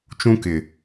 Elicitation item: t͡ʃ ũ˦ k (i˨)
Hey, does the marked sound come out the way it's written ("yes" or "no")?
no